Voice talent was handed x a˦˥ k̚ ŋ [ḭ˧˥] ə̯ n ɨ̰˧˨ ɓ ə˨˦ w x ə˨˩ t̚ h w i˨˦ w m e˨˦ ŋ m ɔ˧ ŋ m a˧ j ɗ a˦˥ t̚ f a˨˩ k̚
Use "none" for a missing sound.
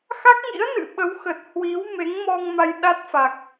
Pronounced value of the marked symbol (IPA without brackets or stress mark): ḭ˧˥